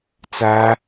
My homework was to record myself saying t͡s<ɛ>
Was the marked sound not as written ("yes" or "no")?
yes